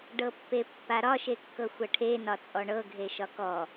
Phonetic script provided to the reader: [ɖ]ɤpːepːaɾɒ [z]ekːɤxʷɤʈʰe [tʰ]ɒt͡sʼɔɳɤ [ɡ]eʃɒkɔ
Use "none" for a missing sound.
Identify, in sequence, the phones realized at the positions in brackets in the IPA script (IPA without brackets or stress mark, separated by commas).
ɖ, ʃ, n, ɡʱ